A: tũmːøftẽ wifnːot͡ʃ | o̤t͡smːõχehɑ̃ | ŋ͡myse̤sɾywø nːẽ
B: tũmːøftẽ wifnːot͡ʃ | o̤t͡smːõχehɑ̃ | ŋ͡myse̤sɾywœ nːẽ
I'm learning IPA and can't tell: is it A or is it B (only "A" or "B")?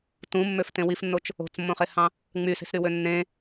A